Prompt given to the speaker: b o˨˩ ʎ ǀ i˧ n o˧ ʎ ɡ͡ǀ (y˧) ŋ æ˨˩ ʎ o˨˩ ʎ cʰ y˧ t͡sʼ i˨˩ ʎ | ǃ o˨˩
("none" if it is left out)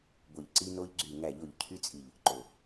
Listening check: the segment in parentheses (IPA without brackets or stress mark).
y˨˩